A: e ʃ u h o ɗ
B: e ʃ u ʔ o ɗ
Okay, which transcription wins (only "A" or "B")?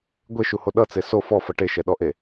A